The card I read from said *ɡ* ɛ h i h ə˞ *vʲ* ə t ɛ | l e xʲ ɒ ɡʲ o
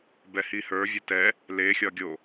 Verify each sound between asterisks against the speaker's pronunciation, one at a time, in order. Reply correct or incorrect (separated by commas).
incorrect, correct